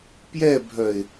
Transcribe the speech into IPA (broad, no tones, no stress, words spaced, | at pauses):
pjɛbʱœɪ̯